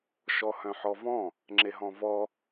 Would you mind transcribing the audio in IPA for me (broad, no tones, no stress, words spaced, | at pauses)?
ʃɔhœ̃ħɔvɔ̃ | ŋ͡ǁeɦɔ̃vɔ